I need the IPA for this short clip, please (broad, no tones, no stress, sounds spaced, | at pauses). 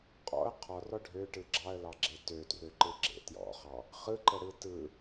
qʼ ɔ̰ ə̯ qʰ ɔ r ɔ ɖʱ ø ʈ ɯ ɡ͡ǁ ɑ ə̯ l ɑ ɡ͡ǁ e t ø t r ø ǃ ɯ ɡ͡ǁ ḛ t j ɔ̰ χ ɑ | χ ɯ ǃ ə ɽ ɯ t ɯ